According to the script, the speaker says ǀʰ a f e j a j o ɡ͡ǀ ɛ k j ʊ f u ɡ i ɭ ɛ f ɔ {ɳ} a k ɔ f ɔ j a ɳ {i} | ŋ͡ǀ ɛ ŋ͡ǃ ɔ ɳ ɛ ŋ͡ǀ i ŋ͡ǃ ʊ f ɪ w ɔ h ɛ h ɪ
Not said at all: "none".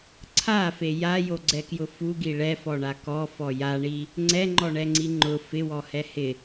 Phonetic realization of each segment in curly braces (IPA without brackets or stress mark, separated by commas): ɳ, i